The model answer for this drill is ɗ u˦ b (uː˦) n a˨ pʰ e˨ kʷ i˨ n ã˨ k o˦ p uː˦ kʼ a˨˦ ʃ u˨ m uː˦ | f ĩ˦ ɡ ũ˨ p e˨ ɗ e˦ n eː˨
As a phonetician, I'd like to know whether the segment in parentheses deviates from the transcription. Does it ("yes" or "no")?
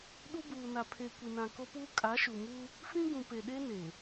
yes